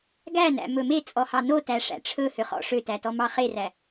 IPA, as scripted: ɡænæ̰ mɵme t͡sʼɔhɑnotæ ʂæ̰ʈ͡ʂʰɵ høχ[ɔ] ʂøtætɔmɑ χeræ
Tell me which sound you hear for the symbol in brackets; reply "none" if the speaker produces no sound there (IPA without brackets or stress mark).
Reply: ɔ̰